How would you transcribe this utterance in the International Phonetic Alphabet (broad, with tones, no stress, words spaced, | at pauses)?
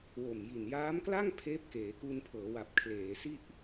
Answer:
wo˨˩mji˨˩n jaː˦˥mkla˥˩ŋ pʰeː˦˥p̚keː˩˦ku˧n pʰɤː˩˦wa˨˩p̚kʰleː˩˦si˥˩ʔ